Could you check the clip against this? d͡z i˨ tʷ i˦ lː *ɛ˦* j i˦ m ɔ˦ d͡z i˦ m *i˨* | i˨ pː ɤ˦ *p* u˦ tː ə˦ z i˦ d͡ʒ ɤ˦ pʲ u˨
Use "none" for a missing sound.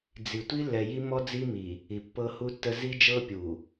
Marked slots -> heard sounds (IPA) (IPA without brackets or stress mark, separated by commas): ɛ˨, i˨, h